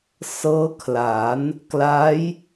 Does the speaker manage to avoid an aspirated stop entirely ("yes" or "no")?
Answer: no